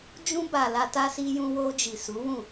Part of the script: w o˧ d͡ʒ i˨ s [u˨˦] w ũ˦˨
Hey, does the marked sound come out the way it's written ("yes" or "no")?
yes